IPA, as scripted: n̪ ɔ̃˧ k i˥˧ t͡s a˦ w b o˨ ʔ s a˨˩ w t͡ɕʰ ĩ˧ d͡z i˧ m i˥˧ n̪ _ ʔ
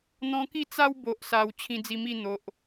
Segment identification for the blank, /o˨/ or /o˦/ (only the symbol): o˨